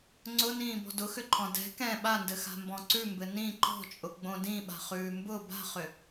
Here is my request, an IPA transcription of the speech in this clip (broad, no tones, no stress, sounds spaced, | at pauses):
ŋ͡ǀ ʊ n ĩː b ɔ̤ d ʊ x ʏ ǃʰ ɔ̃ d ɛ̤ k ɛ̃ ɓ a n d ɘ x a̤ m b ɔ̃ ǀ ʉ m b ɘ n ĩ ǃ ɔ̤ t͡ʃʼ ʊ ɡ͡b õ d ĩ ɓ a̤ χ ʉː m b ʊ b a̤ χ ʏ